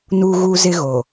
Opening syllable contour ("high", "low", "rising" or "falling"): high